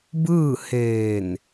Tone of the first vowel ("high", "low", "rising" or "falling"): falling